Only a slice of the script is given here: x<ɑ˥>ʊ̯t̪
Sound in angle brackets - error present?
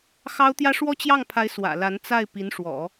no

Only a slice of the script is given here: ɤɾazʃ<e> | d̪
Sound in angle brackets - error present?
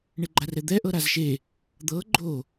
no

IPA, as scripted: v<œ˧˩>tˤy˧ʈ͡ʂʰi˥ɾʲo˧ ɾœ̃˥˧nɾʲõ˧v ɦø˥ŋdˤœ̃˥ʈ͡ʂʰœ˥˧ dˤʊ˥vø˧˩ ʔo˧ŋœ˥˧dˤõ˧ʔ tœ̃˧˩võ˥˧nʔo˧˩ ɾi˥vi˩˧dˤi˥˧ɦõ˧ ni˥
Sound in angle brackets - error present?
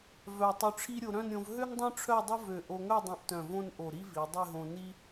no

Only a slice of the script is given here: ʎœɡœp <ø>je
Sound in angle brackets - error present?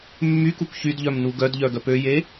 no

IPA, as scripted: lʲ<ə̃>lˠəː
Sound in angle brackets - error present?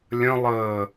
no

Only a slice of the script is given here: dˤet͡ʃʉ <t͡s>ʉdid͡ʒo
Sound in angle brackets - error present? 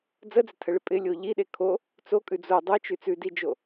no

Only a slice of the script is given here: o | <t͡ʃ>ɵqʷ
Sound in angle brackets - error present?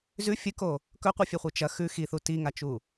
yes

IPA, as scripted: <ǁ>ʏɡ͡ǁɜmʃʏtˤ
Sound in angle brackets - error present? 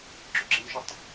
no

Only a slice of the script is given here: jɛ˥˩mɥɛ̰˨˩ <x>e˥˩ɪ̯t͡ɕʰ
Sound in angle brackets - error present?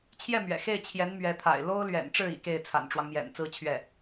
no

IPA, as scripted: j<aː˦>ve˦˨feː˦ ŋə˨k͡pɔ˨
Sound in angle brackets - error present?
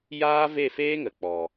no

